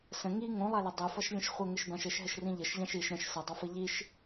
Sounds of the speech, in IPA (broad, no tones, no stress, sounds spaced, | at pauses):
s ə̃ ŋ i ŋ õ lˠ a l ɘ dˤ i f ʌ ʃ lʲ ə̃ ʃ χʷ ɘ ŋ ɘ ʃ b ã ʃ ɘ ʃ ɦ ɘ ʃ r ĩ ʎ ɘ ʃ ʎ ã ʃ i ʃ ɾ ə̃ ʃ s ʌ dˤ o f ɘ ʎ i ʃ